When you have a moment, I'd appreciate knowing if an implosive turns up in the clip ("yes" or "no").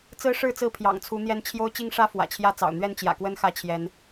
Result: no